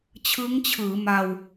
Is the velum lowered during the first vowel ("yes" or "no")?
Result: no